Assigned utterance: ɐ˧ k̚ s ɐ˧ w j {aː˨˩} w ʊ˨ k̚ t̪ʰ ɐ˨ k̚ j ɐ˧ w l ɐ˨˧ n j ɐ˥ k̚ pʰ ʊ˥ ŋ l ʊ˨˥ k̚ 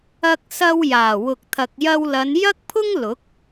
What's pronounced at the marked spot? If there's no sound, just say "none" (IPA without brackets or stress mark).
aː˨˩